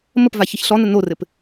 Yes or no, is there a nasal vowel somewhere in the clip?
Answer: no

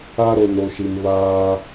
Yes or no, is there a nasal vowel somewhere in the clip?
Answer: no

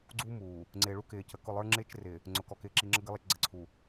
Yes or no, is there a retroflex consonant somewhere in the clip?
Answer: yes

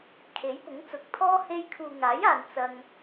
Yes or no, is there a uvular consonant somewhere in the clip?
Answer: no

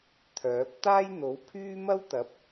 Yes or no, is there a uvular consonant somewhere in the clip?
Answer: no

